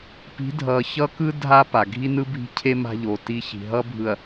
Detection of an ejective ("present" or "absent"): absent